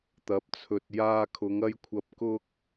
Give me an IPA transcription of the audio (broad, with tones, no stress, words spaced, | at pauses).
t̪ɐ˨˥p̚t͡sʰɵ˨t̚ jaː˧kʰʊ˨˧ŋ ɐ˥jkʷʰɐ˧p̚kʊ˥k̚